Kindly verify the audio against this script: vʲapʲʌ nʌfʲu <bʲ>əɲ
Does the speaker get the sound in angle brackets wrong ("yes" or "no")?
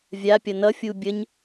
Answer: no